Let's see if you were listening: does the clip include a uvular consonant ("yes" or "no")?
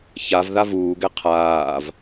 yes